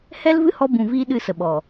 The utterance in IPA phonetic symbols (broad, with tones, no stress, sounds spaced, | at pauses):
h ɛ˦ l v ɨ˦ h ɔ˧ b ũ˨ v iː˦ ɗ ɨ˧ s ə˨ ɓ ɔ˨